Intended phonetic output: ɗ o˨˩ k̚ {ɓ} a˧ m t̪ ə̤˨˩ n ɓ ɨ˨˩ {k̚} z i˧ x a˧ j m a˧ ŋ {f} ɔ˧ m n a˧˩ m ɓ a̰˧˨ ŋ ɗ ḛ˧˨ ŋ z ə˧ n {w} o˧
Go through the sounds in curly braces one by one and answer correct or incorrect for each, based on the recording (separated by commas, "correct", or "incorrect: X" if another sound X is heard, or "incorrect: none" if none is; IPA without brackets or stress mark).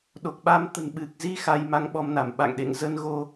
correct, correct, incorrect: ɓ, incorrect: ɣ